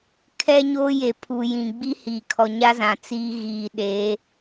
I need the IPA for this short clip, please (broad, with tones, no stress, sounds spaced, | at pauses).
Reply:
kʰ ɛ˦ ɲ oː˦ j e˨ pʰ u˨ j ĩ˨ ɡ͡b i˦ h iː˨ kʰ ɔ˨ ɲ a˦ z ã˨ t͡s iː˦ ɣ iː˨ ɗ eː˨˦